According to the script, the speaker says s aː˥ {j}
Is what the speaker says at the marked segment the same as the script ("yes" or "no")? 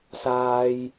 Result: yes